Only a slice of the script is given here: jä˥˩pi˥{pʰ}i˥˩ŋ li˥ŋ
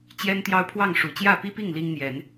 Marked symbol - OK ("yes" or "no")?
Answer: no